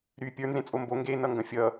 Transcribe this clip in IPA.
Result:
ɾy pʲə˞nzẽ t͡sʼombo ŋɡe nʌŋɡɐ̃fʲʌ

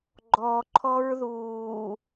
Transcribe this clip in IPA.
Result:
ɡ͡ǃɔǃʰɔɹðuː

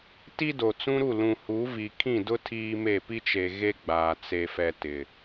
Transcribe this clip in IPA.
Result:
ti˦do˨t͡sũ˦ɾu˦˨ lũ˨hu˨˦ vi˨kʰĩ˦˨dʊ˦ tʰiː˦me˦˨ pi˦t͡ʃe˨ ɣe˦ɡ͡baː˨ t͡se˨fɛ˨ tɪ˨

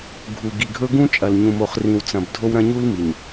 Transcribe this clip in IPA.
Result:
ɡʱu˨ ɡi˨ɡʱɵ˦ ɡũ˦t͡ʃʼɐ˨l ɲũ˨mo˨χrĩ˨wt͡sɐ̃˨b dʱo˦wɾɐ̃˦ɲu˦l mi˨ɲ

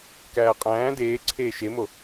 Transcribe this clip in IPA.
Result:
kæːqʼæ̃ː deːǀʰeː ʃemo

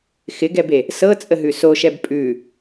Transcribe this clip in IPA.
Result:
xɪɡɛbe | sɤt͡sʼəɦʉ soʃɛb pʼʉ

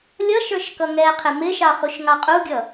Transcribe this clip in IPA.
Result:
lʲʌʃ ə˞ʃkʌŋɛqʰɪ mɪʃɑ χuʃŋɑqʼuɡʲʌ

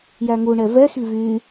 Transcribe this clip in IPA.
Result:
jæŋuɳɛ vɛxi vy

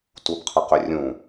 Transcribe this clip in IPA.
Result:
tubqʰəqʏrʲũ

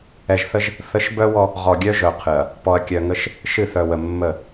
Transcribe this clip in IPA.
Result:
ɛ˨ʒθə˦ʒ | θə˨˦ʃ bœ˦wɔ˦ | ʁɔ˨ɡʲœ˦ʒœ˨qʰɨ˨ɐ̯ | pɔ˨ɐ̯kʲœ˨ŋə˦ʃ | ʃɨ˦˨θœ˨wə˨ mːə˦˨

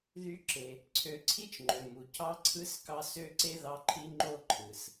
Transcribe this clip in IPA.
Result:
ðy˦ǁe˨ | ǀʰø˨ǀʰi˥t͡ʃŋ͡ǃø˩ mu˩cʰɑ˦ǀʰɯ˦s kɑ˦ sø˦ǀe˥ ðɑ˦ǃʰi˥ŋ͡ǃo˥ ǃʰɯ˩s

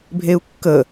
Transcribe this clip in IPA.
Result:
bʱeu̯kːə

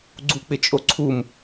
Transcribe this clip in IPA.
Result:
ɡ͡ǀuk͡pɪt͡ʃʼo ǀʰum

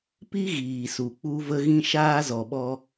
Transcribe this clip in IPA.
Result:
pi˦ɣiː˨ su˨ k͡pu˧və˧ɣĩ˧ ʃaː˧zɔ˨ɓɔ˧

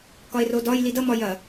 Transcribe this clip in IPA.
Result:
kɒe̯rodɒj lidʌ mɒjɐ

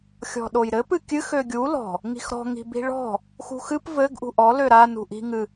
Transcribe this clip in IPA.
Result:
xʲɔ̤ɗojɾɘ pɨkʲɨx øɡʲu lɔ̤ | ŋi̤xɾɔ̤ ŋi̤bi̤ɭɔ̤ | xṳxɨp vɘɡ ʔṳʔɔ løɾa nṳʔi̤ ŋɨ

